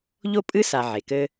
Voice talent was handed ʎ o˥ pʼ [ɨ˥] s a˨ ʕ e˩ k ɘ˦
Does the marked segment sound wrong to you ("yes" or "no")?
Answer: no